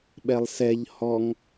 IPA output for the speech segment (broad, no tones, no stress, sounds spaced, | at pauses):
ɓ ɛ lˠ s ɛ ʎ h ɔ ŋ